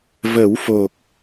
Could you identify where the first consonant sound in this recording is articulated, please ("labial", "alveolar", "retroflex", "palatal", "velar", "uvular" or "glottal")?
labial